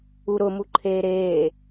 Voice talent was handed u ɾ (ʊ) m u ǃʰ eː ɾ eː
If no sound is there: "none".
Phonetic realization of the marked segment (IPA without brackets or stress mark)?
ʊ